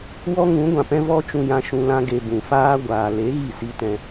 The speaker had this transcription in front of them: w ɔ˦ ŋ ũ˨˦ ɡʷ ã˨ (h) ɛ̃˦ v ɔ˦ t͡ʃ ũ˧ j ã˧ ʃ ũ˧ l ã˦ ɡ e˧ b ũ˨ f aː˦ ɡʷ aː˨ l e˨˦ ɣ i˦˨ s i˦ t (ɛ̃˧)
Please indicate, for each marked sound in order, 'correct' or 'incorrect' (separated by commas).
incorrect, correct